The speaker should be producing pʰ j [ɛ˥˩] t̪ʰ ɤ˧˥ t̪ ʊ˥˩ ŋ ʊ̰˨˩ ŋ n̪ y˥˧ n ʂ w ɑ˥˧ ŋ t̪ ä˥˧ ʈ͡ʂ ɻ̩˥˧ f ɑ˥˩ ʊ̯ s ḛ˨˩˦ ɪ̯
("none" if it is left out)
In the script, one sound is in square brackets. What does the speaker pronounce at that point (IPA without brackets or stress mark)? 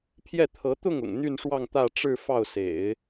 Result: ɛ˥˩